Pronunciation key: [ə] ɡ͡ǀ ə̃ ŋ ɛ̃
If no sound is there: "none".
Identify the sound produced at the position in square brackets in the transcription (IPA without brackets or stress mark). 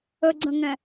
ə